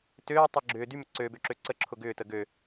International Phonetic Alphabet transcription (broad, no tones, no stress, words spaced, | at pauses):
tøːtˤœ ɡ͡ǁʏː dymʏ ǀøbøǁø ǀəǁʰʊ ɡʏːtə ɡø